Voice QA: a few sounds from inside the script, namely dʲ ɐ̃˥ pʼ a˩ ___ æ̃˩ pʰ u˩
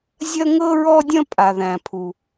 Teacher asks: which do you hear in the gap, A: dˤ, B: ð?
B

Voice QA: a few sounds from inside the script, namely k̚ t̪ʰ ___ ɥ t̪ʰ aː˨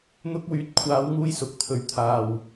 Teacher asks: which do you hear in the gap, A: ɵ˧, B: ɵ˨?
B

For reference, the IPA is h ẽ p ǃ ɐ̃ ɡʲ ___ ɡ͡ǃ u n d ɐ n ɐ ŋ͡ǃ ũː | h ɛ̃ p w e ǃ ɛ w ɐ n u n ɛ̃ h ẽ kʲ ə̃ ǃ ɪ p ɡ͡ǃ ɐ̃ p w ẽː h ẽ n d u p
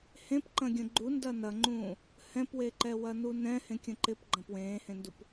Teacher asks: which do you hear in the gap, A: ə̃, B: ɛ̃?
A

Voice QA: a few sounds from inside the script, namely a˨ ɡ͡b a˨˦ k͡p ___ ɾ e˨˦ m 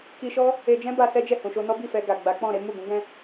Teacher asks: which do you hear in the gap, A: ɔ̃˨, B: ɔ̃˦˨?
B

